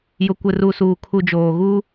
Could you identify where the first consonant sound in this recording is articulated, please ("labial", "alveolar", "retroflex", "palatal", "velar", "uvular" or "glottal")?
palatal